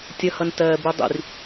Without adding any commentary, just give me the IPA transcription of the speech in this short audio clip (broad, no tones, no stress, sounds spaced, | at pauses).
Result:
tʲ ʌ h ʌ n t ɜː b u dˤ ḭ r